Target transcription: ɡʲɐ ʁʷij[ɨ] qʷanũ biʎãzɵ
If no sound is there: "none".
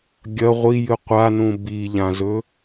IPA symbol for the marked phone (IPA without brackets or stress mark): ɨ